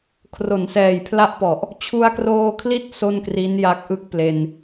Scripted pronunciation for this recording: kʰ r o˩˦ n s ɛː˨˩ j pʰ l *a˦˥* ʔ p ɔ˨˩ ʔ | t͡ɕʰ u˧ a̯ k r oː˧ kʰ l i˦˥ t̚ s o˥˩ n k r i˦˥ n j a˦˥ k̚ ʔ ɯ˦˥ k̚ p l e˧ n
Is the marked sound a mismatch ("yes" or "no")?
no